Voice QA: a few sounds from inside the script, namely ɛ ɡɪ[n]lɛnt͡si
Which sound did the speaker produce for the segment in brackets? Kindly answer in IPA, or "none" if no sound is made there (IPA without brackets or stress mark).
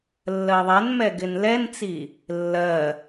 n